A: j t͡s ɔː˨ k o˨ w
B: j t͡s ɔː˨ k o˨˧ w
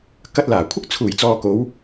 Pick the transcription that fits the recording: B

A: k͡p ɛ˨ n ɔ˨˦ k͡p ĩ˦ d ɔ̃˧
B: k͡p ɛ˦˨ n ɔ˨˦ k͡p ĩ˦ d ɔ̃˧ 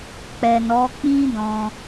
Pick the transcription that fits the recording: A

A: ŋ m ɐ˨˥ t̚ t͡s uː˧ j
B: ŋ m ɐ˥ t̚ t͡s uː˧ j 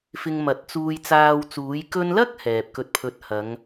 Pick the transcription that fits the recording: A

